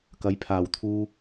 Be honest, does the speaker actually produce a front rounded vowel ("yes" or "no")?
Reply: no